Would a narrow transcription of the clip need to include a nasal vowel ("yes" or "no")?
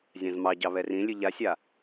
yes